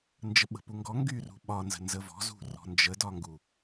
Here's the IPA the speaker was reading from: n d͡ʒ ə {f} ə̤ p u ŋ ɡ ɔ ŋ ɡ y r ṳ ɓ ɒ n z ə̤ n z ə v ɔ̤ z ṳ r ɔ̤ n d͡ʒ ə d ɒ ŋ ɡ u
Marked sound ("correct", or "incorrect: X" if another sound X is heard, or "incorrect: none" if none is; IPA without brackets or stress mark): incorrect: ɓ